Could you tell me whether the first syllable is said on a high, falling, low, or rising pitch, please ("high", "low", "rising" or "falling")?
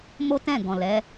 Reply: high